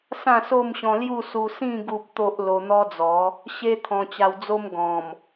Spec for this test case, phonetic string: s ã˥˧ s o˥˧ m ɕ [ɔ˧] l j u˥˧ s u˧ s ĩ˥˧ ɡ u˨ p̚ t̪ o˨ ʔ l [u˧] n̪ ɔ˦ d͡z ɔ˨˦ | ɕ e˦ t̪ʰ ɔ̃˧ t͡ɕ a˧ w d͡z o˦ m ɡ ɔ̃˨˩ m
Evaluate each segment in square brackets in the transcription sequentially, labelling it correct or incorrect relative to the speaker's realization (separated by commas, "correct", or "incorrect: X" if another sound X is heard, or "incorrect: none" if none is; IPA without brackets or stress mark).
incorrect: ɔ̃˧, incorrect: o˧